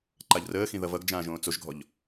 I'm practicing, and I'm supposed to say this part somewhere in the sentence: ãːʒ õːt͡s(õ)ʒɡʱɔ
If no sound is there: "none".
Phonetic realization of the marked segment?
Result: o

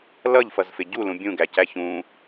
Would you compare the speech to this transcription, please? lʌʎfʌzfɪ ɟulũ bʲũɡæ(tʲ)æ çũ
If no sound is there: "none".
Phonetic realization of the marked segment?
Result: c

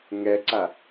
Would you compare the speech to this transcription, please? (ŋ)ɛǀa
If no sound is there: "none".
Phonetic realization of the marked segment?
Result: ŋ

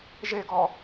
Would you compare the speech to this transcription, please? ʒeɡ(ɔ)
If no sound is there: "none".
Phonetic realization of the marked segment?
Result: ɔ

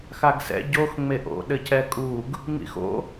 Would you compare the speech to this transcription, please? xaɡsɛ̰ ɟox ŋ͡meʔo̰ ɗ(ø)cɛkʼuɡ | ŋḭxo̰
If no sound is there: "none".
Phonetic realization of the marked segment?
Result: ɘ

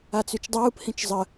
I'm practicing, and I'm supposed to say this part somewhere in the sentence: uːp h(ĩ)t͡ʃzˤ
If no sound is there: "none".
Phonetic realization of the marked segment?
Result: ĩ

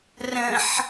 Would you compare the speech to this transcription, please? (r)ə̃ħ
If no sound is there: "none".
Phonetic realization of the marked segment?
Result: r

